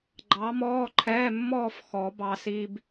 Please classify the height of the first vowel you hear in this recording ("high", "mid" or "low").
low